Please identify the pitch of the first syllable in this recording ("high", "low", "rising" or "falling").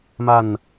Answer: falling